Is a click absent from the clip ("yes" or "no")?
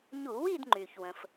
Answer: no